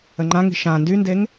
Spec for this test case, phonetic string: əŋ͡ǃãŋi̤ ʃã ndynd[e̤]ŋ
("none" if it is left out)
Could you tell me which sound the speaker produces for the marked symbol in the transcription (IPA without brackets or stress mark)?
e